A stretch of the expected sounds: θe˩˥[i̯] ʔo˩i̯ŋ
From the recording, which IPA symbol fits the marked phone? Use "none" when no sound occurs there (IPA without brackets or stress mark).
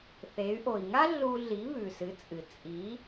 y̯